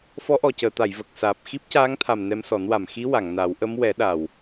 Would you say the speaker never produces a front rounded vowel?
yes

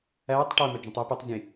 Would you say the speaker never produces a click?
yes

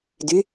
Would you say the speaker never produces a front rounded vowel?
no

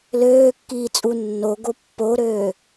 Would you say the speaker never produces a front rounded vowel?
no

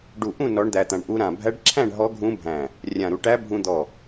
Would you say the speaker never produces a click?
no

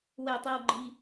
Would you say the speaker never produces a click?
no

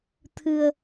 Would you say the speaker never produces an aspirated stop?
no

